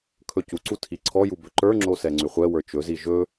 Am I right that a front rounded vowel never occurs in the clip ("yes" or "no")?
no